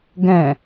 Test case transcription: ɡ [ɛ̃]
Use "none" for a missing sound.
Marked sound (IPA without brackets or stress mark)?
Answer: ɛ̃